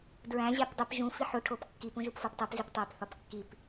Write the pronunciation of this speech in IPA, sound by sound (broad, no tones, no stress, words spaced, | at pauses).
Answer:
dɹæ̃ ʑæpdˤip ʒũ fiħo ʈʰopkːip ũʒupfoptˤip ziptˤæp θɒpkːip